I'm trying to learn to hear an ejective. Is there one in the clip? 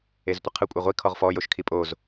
yes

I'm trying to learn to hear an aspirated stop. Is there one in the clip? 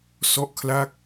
yes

